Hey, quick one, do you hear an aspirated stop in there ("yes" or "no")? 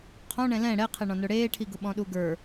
yes